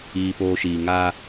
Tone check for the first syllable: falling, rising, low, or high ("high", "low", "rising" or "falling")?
low